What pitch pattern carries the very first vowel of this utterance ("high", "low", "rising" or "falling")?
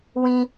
high